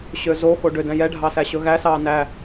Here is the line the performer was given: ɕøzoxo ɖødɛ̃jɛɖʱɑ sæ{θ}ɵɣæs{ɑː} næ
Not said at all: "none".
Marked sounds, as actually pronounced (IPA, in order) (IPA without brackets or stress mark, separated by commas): ɕ, ɑː